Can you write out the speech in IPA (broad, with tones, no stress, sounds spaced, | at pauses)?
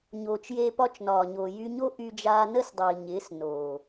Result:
ɲ oː˨ t͡ʃ j e˧ p ɒ˧ t͡ʃ n ɒː˨ ɲ oː˨ j y˧ ɲ o˦ ʔ y˧ d͡ʒ aː˧ n ə˦ s dˤ iː˨ ɲ ɪː˨˦ s n oː˨